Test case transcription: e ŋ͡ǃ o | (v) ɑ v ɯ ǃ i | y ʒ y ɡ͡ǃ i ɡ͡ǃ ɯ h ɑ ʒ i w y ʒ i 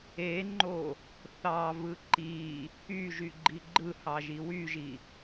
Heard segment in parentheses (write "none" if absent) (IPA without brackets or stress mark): θ